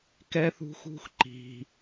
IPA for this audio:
kɛ˧θṳ˧xṳ˧x ǃi̤˩

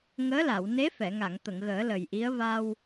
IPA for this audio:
ŋəː˧˥la˨˩˨w ne˧˥fɛ˨˩˨ŋa˨˩˨ŋ t̪ə˨˩˨ŋɣəː˨˩˦lə˨˩jʔi˧˥ə̯ va˧w

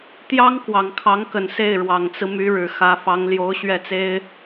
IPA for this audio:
t̪jɑ˥ŋ kwɑ˨˩ŋkʰɑ˧˥ŋkə˨˩n se˥˩ɪ̯ɻwɑ˨˩ŋt͡sɹ̩˦ my˧˥ɻɻ̩˨˩xä˧˥fɑ˧˥ŋ ljo˧˥ʊ̯ɕɥɛ˥˩t͡se˥ɪ̯

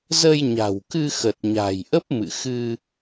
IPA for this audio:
zə˧jɲa̤˨˩wkɨ˧ xə˨˩t̚ɲa̤˨˩jʔə˦˥p̚ mɨ̰˧˨xɨ˧

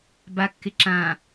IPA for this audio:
bakːɪ ǁã

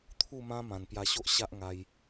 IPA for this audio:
t̪ʰu˥˧mã˦ mã˨˩npja˧ɕo˦ʔ ɕa˦ʔ ŋa˧j

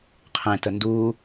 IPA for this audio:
qʰẽ tənduː

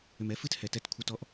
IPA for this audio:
ʏ˨mɛ˦fɨ˦t hɛ˨tɛ˧tkʷʰə˧ tɔ˦ʔ

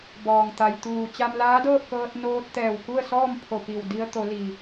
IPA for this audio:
bɔː˩ŋt̪a˩jt̪uː˧˩ t͡ɕa˧mlaː˧˥dɤː˥˨p̚kɤː˧t̚ noː˧t̚ t̪ɛː˧˩wku˥˨ə̯sɔː˥˨m pʰo˧˩pi˧˩wdi˧ə̯ t̪o˩˧li˩

